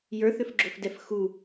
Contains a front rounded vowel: yes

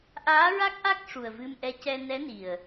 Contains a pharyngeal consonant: no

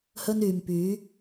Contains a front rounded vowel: yes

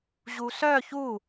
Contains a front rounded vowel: yes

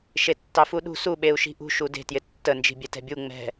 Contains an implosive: yes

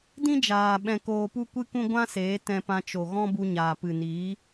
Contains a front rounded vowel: no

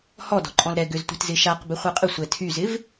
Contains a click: yes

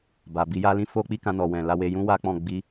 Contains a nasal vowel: yes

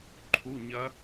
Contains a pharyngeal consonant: no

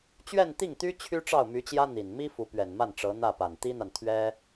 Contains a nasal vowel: no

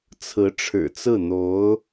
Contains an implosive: no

